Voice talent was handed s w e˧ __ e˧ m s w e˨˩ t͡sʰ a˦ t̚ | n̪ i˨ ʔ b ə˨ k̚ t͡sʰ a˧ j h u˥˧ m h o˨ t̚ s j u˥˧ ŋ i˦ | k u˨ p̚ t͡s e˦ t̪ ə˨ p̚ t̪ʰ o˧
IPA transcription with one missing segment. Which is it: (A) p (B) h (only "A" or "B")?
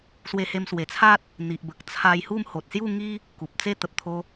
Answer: B